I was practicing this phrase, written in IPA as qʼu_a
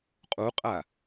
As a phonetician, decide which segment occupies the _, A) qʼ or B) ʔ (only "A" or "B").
A